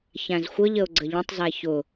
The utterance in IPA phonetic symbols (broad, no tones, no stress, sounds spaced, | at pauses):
ç æ̃ z xʷ ə ʎ ə ʊ̯ ɡ͡ǀ ə ʎ ə̃ tˤ z æ ç ʊ